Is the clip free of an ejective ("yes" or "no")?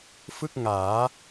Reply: yes